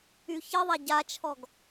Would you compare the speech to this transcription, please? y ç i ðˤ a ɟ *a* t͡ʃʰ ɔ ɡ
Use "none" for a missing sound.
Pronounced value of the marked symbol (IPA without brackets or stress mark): a